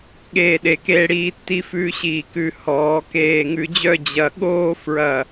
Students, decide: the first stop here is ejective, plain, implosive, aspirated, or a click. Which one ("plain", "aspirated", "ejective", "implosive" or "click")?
implosive